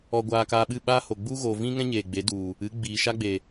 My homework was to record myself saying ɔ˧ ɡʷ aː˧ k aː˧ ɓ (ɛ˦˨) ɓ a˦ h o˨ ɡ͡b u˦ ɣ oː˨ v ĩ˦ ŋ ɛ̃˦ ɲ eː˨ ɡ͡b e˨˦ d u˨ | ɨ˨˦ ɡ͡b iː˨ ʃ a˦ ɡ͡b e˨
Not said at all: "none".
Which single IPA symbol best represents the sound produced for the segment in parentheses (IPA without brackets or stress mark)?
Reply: ɨ˦˨